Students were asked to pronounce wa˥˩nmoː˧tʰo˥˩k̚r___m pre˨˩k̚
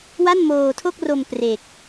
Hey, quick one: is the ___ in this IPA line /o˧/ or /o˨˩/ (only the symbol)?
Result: o˧